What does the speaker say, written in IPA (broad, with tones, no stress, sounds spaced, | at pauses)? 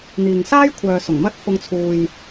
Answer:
n̪ iː˨ ŋ s aː˥ j kʷʰ œː˨ s ʊ˨˩ ŋ m ɐ˥ t̚ f ʊ˧ ŋ t͡sʰ uː˨ j